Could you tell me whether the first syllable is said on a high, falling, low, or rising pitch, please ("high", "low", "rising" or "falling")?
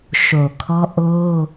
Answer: low